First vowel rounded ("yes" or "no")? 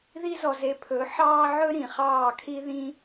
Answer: no